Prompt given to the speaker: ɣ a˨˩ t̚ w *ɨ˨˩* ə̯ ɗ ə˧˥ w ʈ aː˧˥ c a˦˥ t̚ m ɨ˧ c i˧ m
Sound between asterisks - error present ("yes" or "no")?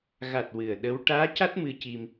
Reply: no